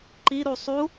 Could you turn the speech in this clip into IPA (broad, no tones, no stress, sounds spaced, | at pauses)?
ǃ i ɾ u sˤ u